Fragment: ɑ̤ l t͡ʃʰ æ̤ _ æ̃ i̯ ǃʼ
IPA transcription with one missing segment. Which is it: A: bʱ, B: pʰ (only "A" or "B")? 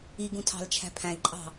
B